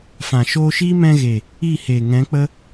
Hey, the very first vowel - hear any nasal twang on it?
yes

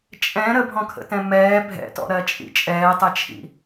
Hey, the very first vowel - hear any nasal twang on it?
yes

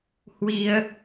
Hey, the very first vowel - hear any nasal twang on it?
no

